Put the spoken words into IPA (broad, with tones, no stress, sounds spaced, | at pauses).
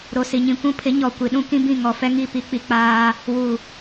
ɾ o˨ s i˨ ɲ ĩ˨ kʷ ũ˦ pʰ ɪ˨˦ ɲ ɔ˨ kʷ i˨ ɗ ũ˦ k ĩ˦ b ĩ˦˨ ŋ ɔ˨ f ɛ˦ ŋ i˦˨ p i˦ k͡p i˨ k͡p aː˦ | w u˨